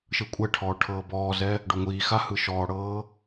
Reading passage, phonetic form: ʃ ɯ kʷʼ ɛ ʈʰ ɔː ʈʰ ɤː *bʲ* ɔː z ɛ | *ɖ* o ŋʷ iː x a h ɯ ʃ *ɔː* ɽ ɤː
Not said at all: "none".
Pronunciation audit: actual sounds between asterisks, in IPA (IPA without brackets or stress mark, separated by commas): b, ɖ, ɔː